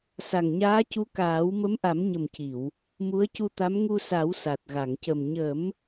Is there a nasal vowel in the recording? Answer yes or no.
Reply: no